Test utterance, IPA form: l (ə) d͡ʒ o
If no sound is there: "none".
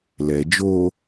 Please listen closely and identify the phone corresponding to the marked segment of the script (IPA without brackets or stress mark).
ɛ